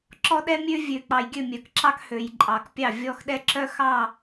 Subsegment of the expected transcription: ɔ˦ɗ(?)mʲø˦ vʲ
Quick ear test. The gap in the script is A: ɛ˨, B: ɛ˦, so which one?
B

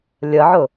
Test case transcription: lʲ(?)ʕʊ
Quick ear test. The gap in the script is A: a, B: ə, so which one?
B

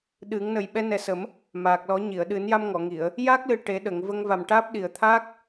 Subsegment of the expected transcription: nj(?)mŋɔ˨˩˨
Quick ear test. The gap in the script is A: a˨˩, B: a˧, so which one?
B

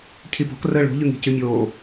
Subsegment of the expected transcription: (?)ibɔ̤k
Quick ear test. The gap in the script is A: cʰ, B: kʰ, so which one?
A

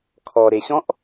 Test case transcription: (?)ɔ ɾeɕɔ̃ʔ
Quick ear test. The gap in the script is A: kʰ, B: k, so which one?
A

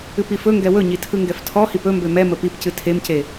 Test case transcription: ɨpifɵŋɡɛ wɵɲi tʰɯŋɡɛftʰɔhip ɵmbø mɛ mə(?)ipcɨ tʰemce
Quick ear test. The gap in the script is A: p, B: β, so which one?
A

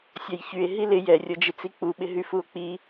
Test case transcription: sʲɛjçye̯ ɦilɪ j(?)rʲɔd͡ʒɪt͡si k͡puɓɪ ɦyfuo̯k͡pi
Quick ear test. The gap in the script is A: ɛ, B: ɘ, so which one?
A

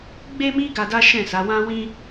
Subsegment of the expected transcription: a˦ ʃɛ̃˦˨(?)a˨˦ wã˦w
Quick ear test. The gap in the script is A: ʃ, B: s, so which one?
B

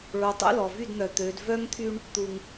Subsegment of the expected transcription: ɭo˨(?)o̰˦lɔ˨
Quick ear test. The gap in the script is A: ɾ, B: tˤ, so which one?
B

